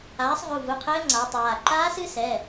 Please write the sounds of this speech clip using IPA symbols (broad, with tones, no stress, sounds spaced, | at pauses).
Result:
aː˩˥ sˤ ʁ u˩˧˩ v u˩˧˩ qʰ ɘː˧˥ ŋ͡ǀ a˩˥ tˤ aː˩˧˩ ǃ aː˧˥ s ɨ˧˥ s ɛ˩˧˩